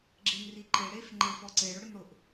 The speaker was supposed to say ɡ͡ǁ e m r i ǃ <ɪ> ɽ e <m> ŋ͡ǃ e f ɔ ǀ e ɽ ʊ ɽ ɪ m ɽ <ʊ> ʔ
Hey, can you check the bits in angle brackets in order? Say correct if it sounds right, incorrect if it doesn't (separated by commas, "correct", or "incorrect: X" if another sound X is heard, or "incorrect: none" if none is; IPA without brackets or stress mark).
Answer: correct, incorrect: f, correct